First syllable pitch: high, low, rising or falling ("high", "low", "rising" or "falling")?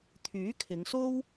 rising